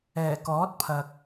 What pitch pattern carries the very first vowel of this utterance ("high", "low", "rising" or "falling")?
low